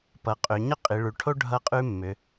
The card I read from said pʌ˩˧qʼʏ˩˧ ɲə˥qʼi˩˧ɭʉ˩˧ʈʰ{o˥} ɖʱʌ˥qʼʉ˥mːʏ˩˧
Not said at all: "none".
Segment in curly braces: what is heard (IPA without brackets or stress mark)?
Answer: o˥